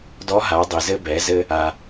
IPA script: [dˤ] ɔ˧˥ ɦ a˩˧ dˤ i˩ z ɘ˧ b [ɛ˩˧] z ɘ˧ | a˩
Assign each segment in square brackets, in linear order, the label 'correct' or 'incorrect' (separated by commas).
incorrect, correct